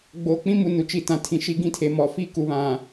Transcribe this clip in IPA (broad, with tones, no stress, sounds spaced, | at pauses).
ɡ͡b oː˨ k͡p ĩ˦ m u˨ n u˨ t͡ʃ i˨ t ã˨ tʰ ĩ˨ ʃ i˦ ɡ ĩ˦ tʰ e˨ m ɔ˨ f i˦ k u˨ β ã˨